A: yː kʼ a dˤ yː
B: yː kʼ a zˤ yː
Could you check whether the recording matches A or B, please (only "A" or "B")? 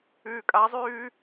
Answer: B